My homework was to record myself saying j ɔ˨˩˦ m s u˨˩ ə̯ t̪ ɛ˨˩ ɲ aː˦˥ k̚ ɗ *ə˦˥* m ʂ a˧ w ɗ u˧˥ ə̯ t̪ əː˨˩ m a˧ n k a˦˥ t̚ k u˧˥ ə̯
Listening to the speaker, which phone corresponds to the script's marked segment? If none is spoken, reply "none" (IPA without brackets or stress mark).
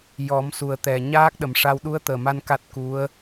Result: ə˨˩